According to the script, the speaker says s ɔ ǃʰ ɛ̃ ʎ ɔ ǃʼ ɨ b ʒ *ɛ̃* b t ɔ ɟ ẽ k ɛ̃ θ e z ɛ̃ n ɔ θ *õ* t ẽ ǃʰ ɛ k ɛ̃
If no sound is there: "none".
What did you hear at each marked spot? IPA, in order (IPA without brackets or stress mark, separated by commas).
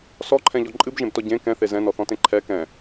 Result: ẽ, ɔ̃